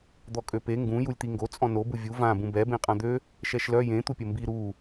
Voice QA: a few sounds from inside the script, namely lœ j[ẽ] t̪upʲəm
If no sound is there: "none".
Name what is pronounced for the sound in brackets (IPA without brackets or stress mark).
ẽ